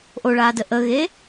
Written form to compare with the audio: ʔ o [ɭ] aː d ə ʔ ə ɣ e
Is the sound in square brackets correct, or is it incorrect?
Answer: correct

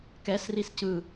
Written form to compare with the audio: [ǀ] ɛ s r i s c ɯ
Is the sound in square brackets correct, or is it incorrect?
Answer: incorrect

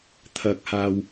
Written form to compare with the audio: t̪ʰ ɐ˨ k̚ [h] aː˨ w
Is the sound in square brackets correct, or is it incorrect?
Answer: correct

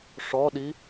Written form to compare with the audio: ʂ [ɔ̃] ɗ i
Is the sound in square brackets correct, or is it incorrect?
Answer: incorrect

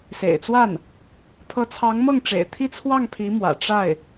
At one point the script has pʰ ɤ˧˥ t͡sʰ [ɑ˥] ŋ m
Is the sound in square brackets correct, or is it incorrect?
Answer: incorrect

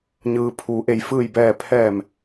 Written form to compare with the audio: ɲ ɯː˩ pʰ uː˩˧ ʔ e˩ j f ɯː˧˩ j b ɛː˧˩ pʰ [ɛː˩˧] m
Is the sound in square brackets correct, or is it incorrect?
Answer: incorrect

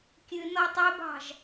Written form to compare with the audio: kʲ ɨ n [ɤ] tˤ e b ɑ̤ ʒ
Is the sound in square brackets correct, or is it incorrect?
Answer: incorrect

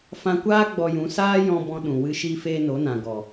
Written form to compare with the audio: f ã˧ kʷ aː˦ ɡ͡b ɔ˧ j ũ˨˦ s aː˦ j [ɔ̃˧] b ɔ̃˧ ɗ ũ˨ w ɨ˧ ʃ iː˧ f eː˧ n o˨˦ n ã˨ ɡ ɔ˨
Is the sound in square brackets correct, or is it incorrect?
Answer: correct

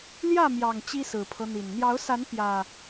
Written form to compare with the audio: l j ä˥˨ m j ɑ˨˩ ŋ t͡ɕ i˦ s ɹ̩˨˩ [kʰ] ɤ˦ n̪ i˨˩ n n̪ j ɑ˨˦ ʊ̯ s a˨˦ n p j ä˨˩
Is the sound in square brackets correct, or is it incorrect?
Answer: incorrect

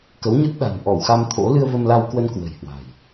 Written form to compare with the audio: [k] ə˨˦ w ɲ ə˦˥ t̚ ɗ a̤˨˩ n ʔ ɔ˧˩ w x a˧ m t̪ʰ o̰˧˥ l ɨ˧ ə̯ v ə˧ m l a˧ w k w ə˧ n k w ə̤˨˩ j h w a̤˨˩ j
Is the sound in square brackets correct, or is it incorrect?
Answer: correct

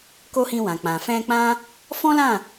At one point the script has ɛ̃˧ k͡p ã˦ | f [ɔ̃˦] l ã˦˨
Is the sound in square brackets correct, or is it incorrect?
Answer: correct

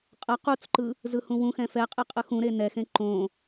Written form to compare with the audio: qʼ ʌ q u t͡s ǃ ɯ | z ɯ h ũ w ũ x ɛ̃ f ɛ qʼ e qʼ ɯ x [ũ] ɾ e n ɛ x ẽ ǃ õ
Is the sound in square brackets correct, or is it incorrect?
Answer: correct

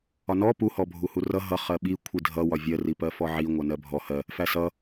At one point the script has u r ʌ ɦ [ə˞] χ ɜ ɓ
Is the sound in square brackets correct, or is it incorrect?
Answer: incorrect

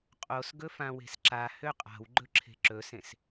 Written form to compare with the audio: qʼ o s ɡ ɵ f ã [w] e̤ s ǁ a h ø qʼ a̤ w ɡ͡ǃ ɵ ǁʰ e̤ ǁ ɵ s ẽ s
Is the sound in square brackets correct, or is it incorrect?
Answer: correct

